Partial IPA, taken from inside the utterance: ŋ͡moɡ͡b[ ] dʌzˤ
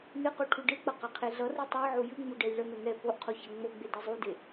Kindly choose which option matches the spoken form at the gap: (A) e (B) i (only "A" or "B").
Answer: A